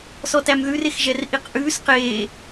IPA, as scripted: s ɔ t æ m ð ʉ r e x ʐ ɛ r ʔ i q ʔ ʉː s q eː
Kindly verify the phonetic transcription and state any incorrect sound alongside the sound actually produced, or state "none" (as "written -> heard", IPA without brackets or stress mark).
ʐ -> ʒ